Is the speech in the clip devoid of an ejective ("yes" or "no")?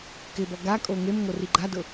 no